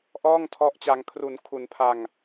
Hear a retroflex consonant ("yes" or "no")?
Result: no